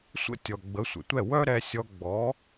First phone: sʷ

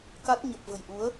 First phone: k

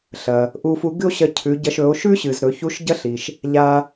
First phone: ɬ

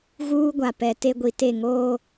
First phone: ɣ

